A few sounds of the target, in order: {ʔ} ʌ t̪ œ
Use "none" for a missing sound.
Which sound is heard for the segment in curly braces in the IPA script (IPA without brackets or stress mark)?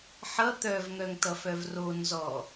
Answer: ħ